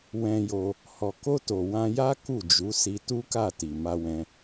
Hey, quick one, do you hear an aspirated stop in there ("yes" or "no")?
no